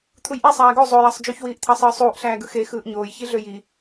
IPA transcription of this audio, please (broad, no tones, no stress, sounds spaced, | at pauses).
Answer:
t̪ʰ u j ʔ e sˤ æː ɡ o zˤ o j ɑ sˤ d͡ʒ y ç w iː ʔ t̪ʰ ɑ sˤ ɯː sˤ uː ʔ ɬ æː ɡ ɯ x e x ɯː ʔ ɲ oː j ç i ɮ ø j i